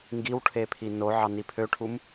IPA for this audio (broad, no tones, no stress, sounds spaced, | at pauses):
ŋ ɡ i w ʈʰ e pʰ i n o ʕ ɑ n i pʰ ø ʈʰ u m